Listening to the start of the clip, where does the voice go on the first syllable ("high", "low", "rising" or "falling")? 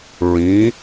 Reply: rising